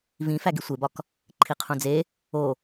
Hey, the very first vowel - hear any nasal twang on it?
yes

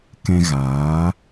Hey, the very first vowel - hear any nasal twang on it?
yes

